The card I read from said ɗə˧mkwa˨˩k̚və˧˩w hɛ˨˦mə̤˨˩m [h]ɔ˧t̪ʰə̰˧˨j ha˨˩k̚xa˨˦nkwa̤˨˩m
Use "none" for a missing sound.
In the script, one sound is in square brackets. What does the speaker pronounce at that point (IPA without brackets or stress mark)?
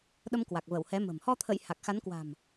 h